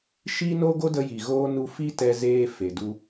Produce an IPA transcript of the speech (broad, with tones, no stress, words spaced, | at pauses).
ʃi˦no˦ ɡo˦də˧ji˨ɣoː˧ nu˧fi˦tɛ˧zeː˧ fe˨du˧